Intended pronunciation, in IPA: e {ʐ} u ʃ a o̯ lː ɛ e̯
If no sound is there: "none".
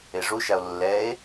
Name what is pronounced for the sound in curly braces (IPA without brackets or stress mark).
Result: ʐ